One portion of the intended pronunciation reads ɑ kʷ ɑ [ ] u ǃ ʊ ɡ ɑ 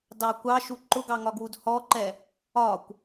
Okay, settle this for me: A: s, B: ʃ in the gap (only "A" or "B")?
B